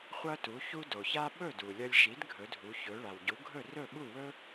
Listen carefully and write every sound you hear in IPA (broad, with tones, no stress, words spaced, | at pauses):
χʷɐ˥tu˩˥çu˥ do˩ça˥ ɓɵ˥˩du˩lʲɐ˧lʲʃi˩˥d ɡʱɵ˩˥dʱu˩˥çɵ˩˥ ɭa˩wɟu˩˥ɡʱɵ˥˩ rɵ˥˩ɓu˥˩wɵ˥